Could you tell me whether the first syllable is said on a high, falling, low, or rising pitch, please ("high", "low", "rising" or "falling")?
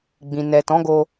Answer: low